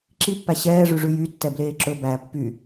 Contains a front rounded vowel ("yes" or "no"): yes